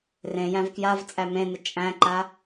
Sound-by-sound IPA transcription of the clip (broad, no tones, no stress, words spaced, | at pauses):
rẽjæ̃v kjav t͡sʼæmẽnɪ t͡ʃʼæ̃ǃa